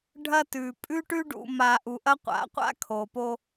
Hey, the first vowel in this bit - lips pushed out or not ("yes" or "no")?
no